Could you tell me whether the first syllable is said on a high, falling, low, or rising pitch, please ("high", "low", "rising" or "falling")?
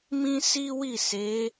high